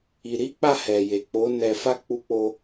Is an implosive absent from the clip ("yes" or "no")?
yes